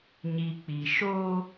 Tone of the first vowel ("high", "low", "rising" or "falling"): low